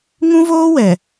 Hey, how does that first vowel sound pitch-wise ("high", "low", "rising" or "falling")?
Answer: high